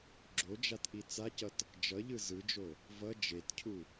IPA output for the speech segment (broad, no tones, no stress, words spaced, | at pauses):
ɡ͡ǁod͡ʒatʔi t͡sacʌt | d͡ʒʌʎɯ zɯd͡ʒo | vʌ d͡ʒetcʰu